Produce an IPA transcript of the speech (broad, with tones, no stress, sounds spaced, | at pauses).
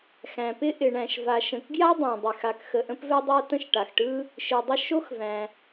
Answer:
x æ̃˩ p ɪ˥ ʔ ɪ˩ ɳ æ̃˩ ʃ v a˩ ʃ ə̃˩ k ɡ j a˥ dˤ æ̃˩ dˤ ɪ˩ x a˩ k x ə˩ ʔ ə̃˥ p v ɛ˥ dˤ a˥ t ə̃˥ ʃ ʈ a˩ x ʈ ɯ˥ | ʃ ɯ˩ dˤ ə˥ ʃ o˥ x v æ̃˩